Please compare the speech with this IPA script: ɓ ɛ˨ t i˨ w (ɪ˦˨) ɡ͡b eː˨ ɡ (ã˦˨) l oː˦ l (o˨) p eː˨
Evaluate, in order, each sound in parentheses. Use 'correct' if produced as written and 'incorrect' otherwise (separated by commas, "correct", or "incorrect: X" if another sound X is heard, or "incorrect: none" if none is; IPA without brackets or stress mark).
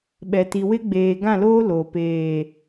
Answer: incorrect: ɪ˦, correct, correct